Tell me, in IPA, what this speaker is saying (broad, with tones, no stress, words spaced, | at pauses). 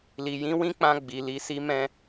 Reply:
li˨jĩ˨˦wĩ˦k͡pã˧ ɡ͡bi˨li˨˦si˦ mɛ̃˧